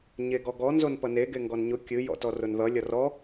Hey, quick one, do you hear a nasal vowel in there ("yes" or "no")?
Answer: no